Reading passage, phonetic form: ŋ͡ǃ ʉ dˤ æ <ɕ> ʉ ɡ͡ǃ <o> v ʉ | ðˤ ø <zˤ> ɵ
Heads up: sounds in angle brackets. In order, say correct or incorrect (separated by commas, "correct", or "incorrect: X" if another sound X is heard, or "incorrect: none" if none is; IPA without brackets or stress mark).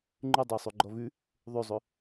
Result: incorrect: sˤ, incorrect: ɔ, correct